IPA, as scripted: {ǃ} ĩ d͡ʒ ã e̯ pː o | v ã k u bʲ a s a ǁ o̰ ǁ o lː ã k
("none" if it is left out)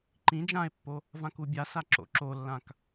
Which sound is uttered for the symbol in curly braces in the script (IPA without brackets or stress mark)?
ǃ